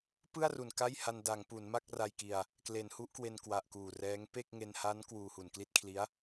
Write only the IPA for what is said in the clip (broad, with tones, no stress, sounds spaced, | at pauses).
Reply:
p ɯ˥˩ a̯ r u˨˩ n k a˥˩ j h a˧ n d a˩˦ ŋ p u˩˦ n m a˥˩ k̚ r a˧ j k i˧ a̯ | k l e˩˦ n h u˦˥ ʔ k w e˧ n k w a˨˩ ʔ k uː˨˩ r ɛː˦˥ ŋ p e˥˩ k̚ ŋ e˧ n h a˦˥ n k w uː˧ h u˨˩ n k l i˥˩ t̚ kʰ l i˦˥ a̯